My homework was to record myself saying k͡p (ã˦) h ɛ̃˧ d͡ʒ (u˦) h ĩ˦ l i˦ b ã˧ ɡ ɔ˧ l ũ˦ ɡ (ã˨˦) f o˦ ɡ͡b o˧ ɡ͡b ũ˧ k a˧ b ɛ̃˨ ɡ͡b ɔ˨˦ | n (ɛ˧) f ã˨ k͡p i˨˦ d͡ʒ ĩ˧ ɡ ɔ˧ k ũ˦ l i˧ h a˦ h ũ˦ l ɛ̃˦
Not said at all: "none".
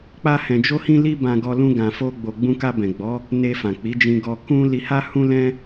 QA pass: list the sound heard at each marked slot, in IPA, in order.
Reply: a˦, o˦, ã˧, e˧

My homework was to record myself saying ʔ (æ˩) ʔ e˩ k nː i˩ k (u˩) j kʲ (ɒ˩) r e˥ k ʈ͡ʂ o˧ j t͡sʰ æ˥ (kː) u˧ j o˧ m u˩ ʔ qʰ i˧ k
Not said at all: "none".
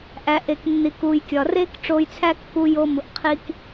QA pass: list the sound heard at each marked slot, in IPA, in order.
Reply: æ˩, u˩, ɒ˩, kː

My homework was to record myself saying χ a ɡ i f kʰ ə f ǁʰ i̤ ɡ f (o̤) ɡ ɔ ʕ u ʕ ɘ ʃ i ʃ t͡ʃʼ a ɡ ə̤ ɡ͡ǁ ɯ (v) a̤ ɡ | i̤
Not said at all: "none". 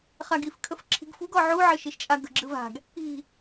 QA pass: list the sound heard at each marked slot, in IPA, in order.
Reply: ṳ, v

